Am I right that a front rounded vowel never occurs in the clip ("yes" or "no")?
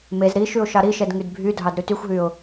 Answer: no